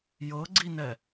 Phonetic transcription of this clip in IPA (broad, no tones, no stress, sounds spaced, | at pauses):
j ɤ ɡ͡ǀ i n ɛ